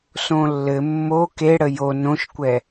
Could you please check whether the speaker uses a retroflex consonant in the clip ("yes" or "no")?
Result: yes